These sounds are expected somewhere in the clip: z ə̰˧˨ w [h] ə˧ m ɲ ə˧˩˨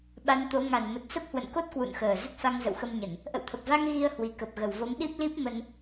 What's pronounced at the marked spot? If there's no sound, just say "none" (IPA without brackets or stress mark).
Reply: x